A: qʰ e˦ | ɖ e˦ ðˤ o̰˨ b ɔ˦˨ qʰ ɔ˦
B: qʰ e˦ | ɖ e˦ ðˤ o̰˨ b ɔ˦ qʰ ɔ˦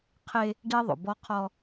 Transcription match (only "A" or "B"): B